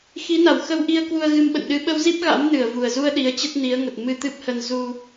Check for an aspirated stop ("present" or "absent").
absent